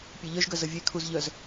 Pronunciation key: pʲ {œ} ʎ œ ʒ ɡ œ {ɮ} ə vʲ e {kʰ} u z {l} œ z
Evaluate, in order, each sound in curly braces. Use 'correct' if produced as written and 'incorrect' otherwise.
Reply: incorrect, incorrect, correct, incorrect

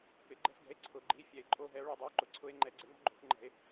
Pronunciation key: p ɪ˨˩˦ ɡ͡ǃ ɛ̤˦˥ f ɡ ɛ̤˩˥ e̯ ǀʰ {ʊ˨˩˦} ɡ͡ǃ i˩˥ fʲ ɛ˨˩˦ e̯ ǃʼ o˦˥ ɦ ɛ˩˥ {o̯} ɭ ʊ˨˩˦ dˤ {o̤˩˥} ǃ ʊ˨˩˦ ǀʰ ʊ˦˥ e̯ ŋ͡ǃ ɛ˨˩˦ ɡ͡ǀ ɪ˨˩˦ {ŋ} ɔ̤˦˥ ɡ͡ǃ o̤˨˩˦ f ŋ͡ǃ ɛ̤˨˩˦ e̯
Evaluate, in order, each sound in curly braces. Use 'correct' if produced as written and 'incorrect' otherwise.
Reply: correct, correct, incorrect, correct

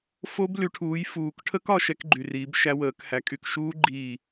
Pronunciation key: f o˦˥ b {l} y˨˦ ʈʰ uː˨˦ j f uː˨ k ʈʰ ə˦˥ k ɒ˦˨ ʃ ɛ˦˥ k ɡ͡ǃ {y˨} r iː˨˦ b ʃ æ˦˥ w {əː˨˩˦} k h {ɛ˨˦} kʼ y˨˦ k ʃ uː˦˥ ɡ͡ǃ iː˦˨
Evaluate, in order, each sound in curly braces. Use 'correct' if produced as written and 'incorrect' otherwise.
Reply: correct, correct, correct, incorrect

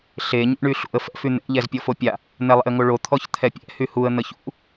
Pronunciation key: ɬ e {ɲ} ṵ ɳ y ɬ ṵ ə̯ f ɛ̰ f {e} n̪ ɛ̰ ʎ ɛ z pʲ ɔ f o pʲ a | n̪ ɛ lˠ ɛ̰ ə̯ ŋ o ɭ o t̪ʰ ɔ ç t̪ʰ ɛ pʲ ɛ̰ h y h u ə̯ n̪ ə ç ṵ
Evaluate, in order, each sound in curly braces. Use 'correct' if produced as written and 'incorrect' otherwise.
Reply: correct, incorrect

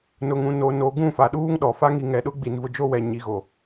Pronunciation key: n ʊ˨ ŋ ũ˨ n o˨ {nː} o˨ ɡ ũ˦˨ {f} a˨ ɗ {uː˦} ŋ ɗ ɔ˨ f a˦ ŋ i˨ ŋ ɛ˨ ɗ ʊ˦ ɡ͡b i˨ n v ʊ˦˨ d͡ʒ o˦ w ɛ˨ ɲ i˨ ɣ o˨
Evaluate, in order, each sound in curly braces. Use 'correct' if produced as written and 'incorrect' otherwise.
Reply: incorrect, correct, correct

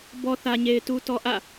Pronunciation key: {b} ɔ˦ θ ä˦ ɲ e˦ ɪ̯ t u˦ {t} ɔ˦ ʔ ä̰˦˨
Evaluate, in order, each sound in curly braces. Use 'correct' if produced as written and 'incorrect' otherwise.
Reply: correct, correct

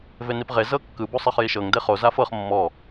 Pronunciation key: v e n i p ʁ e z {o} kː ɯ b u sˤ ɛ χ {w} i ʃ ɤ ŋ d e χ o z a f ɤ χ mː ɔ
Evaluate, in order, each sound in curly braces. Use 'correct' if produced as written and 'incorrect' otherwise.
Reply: incorrect, incorrect

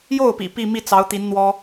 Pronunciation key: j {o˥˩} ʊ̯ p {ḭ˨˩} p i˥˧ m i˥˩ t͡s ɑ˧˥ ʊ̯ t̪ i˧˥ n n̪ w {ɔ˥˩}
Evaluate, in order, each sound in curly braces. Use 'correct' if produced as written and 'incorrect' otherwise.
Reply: correct, correct, incorrect

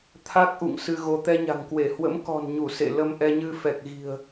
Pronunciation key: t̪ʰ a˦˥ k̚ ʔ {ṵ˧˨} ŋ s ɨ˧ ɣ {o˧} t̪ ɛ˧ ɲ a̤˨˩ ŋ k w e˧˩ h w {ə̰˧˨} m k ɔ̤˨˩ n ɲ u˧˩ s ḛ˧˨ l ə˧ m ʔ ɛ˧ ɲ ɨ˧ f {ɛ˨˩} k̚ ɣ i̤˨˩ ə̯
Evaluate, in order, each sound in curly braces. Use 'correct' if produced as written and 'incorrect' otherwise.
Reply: correct, correct, incorrect, correct

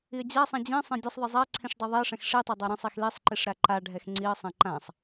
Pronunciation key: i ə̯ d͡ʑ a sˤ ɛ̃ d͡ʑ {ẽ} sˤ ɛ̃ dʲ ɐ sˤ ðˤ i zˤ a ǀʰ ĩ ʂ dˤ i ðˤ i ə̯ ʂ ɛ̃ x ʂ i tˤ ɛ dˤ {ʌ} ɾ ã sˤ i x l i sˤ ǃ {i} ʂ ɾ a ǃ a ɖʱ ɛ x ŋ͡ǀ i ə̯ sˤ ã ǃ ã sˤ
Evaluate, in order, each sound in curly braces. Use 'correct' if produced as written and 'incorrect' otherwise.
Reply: incorrect, incorrect, correct

